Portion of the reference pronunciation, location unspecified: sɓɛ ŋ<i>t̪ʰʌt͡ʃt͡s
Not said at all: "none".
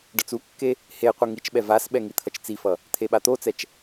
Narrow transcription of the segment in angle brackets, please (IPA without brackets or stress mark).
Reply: i